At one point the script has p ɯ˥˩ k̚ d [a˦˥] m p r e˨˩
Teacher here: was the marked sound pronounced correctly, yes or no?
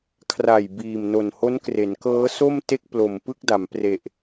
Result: no